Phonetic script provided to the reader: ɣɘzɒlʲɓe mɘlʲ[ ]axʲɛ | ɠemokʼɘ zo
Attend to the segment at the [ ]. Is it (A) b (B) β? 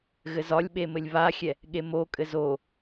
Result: B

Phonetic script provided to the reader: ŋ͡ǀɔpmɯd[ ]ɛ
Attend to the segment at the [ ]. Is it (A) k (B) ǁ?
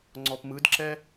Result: B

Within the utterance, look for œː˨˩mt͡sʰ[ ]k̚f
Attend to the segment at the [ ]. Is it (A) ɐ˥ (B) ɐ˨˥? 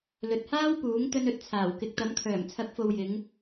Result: B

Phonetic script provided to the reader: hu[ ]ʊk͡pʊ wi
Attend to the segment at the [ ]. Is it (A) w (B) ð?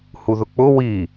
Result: B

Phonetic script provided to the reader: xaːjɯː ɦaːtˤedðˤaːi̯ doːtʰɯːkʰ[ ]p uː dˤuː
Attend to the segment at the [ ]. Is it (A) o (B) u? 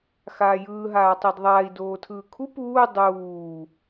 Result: B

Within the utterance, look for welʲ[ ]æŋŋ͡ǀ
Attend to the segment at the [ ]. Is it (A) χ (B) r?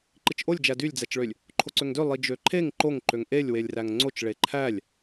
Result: B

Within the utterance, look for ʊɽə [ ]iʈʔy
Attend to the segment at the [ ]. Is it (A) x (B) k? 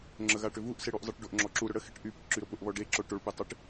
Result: A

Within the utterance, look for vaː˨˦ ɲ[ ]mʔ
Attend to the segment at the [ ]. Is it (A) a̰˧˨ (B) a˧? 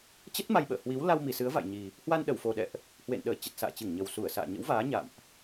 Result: A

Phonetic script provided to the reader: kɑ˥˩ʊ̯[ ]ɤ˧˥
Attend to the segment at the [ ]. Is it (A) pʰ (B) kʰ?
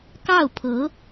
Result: A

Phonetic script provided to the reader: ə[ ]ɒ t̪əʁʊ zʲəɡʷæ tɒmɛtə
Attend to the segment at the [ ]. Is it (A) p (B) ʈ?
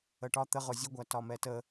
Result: B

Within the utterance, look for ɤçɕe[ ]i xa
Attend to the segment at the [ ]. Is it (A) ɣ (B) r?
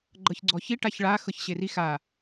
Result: B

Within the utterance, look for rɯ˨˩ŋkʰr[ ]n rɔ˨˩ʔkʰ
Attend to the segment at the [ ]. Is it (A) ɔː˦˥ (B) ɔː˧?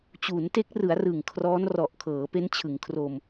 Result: A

